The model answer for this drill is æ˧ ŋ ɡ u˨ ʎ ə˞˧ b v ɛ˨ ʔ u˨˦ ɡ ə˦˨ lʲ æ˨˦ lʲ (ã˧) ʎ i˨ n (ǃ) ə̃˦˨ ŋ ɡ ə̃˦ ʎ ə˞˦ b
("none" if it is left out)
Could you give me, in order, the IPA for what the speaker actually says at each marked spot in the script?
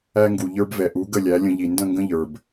ə̃˧, d

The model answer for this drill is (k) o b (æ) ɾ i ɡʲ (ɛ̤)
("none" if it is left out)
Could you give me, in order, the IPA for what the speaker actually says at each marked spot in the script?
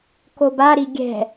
k, a, ɛ̤

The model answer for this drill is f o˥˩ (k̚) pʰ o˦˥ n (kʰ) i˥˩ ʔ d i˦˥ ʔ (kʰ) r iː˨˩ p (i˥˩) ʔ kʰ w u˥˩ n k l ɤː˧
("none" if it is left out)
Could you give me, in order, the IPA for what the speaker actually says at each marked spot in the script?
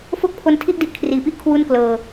k̚, tʰ, kʰ, i˥˩

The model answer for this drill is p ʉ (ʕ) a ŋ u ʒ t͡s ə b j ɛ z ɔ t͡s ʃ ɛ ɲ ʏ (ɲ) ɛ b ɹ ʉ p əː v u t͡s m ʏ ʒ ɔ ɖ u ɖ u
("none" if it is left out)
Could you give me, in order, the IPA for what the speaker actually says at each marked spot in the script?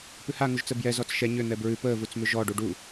h, n̪

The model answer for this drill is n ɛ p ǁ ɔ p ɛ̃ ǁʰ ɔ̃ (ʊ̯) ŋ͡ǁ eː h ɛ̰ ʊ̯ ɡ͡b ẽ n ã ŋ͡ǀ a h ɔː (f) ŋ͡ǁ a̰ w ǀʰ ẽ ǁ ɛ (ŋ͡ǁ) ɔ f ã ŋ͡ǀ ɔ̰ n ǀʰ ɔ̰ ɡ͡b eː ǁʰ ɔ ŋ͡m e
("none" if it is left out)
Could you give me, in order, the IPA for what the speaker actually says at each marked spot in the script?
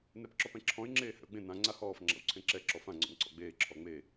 ɪ̯, f, ǁ

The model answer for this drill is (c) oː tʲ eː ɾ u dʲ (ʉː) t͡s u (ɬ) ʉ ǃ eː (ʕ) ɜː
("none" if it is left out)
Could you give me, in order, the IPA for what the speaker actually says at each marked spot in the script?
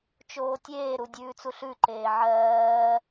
t͡ʃ, ʉː, ɬ, ʕ

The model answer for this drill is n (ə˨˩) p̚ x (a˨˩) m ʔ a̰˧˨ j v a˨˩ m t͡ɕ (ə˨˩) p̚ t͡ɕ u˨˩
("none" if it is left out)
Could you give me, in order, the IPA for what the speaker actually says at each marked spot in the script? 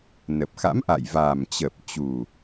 ə˨˩, a̰˧˥, ə˨˩

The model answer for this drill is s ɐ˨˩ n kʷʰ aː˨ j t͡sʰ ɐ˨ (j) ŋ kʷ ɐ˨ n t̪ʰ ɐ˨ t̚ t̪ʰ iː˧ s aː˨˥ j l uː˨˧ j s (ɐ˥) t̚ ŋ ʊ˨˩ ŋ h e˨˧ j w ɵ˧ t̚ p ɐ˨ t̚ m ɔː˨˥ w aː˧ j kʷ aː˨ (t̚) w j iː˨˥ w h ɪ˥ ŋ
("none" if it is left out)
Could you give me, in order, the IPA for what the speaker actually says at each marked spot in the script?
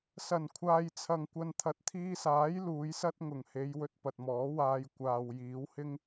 none, ɐ˥, none

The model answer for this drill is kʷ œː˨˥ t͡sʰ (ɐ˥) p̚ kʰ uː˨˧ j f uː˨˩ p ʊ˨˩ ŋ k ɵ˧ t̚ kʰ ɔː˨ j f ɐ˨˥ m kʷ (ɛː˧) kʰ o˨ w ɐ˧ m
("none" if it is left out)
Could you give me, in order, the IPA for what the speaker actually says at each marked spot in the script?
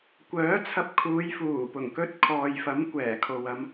ɐ˧, ɛː˨˩

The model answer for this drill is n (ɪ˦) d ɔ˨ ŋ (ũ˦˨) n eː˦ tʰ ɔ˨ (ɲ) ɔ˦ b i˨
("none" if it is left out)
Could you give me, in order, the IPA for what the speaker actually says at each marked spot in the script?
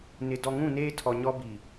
ɪ˨, ũ˦˨, ɲ

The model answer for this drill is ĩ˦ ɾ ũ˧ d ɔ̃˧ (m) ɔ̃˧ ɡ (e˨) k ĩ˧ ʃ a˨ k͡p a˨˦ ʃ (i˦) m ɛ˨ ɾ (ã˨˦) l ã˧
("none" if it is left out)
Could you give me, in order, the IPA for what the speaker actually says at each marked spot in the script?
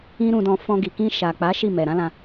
f, i˨, i˦˨, ã˨˦

